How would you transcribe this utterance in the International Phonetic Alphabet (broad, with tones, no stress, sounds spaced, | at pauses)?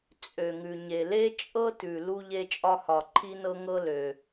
t͡sʼ ø˩ ŋ ʉ˩ ɲ e˩ l e˥ t͡ʃʼ ɤ˥ t ʉ˩ l u˧ ʎ e˧ t͡ʃʼ ɒ˧ h ɒ˩ ǃʰ i˧ n ɤ˧ ŋ ɤ˧ l ø˩